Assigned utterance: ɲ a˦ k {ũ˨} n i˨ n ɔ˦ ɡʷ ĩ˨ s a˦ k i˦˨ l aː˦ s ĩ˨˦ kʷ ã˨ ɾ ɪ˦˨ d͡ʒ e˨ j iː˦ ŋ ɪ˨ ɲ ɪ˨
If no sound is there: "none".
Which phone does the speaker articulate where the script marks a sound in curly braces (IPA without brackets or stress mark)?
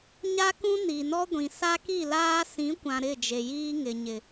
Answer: ũ˦